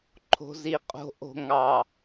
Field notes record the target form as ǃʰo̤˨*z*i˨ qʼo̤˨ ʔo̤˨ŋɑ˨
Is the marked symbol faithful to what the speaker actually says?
yes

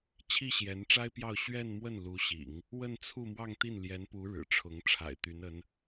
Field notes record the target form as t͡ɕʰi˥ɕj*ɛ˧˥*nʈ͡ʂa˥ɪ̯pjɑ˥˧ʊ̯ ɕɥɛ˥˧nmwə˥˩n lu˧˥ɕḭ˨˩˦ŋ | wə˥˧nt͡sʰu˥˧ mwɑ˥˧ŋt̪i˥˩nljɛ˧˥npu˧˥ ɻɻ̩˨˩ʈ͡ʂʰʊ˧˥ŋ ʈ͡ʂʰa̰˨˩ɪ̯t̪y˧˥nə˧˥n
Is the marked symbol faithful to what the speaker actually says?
yes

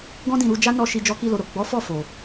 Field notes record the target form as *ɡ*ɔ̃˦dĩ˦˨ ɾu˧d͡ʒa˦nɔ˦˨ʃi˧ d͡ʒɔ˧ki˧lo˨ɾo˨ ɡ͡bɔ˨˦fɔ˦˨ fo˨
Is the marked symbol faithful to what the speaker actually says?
yes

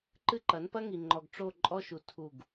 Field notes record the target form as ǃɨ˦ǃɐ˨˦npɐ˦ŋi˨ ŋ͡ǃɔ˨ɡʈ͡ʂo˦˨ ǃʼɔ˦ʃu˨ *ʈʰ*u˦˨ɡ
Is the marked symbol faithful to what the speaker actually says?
no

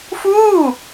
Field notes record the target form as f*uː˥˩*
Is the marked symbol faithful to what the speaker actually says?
yes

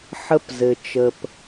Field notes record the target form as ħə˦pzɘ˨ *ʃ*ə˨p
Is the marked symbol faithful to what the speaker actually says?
no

